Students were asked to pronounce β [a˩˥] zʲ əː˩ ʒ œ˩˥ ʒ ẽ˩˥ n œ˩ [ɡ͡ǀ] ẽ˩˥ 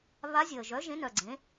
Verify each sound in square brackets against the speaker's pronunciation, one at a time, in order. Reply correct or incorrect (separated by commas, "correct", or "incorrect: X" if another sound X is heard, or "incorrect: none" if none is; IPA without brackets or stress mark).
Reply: incorrect: a˧˥, correct